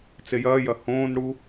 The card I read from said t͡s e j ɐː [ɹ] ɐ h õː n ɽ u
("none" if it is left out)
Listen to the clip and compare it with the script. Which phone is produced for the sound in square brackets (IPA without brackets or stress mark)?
j